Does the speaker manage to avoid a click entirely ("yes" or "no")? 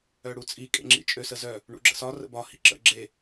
no